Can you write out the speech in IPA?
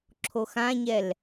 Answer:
ǁʰ o x ã ɲ ɛ l

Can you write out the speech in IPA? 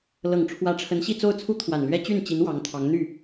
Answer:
l ɤ˨˩ ŋ ʈ͡ʂʰ w ä˧˥ ʈ͡ʂʰ ə˧˥ n ɕ i˥˧ t͡s o˥˩ ʊ̯ t͡sʰ u˥ t̪ʰ w a˨˩ n l ɥ ɛ˥ t͡ɕ y˥˩ n t͡ɕ i˧˥ n w ɑ˧˥ ŋ t̪ʰ ɑ˧˥ ŋ n̪ y˥˩

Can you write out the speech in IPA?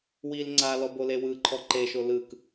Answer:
w i l ŋ͡ǀ a l ɔ b o l e w ɯ ǃʰ ɔ ǃ e ʃ o l ɯ k

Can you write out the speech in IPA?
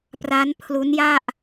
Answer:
p r a˦˥ n pʰ l u˦˥ n j a˥˩ ʔ

